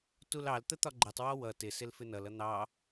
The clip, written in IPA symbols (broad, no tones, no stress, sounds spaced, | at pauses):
t u l ɑ l t̪ ə t̪ ɒ ɡ͡ǃ ə tˤ w ɔ w ʌ t ɪ s ɪ l f ɪ n ʌ l ʌ n̪ ɑ